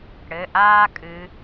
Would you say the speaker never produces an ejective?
no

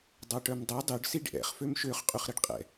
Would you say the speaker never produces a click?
yes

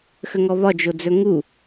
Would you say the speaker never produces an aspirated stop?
yes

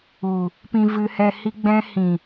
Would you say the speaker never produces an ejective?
yes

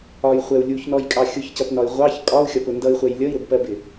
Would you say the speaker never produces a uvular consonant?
no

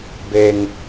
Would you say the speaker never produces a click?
yes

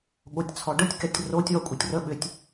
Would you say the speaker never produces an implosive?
no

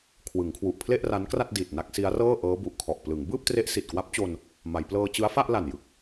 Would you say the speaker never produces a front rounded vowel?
yes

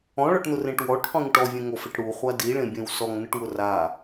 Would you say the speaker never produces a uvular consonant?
no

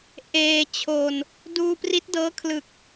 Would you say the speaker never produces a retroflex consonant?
yes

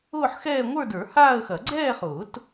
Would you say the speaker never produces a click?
no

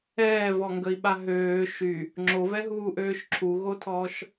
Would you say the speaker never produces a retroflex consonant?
yes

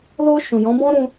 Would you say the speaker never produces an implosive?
yes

